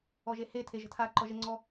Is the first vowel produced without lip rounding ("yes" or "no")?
no